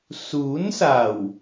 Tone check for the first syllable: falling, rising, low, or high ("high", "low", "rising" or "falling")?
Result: rising